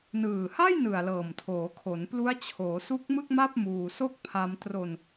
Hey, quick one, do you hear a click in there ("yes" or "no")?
no